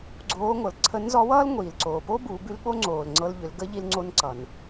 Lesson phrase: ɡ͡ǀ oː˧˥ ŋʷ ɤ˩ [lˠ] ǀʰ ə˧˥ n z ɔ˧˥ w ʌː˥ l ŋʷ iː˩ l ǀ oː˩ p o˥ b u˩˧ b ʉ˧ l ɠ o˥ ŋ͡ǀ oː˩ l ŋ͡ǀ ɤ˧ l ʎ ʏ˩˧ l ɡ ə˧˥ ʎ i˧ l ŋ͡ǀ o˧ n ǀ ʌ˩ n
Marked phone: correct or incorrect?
incorrect: l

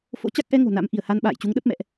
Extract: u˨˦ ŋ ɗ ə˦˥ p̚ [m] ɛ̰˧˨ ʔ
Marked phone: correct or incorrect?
correct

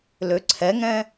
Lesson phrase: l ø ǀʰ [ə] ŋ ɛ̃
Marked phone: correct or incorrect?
incorrect: ɛ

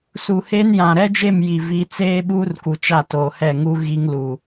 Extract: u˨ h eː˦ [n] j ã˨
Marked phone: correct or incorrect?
correct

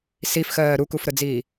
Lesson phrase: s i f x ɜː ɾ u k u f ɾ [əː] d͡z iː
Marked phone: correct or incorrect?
incorrect: ə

